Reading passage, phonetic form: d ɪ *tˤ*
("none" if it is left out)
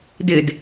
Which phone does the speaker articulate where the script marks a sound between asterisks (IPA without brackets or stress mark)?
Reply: d